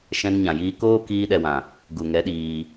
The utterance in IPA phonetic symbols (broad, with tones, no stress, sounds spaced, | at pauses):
ʃ ɛ̃˧ n ɲ ã˨ j iː˧ k oː˦ k iː˧ ɗ ɛ˨ w ã˨ | ɡ u˨ ŋ ɛ˨˦ ɗ iː˧